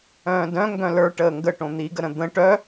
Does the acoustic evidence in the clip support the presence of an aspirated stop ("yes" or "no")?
no